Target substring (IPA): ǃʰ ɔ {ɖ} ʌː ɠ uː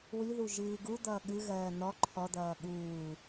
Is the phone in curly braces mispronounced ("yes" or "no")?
yes